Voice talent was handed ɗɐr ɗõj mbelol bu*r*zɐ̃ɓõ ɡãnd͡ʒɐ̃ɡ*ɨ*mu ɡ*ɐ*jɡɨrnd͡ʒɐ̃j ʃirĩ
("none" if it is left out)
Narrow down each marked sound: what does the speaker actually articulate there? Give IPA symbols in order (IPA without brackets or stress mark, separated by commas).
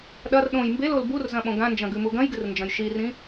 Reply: r, ʉ, ɐ̃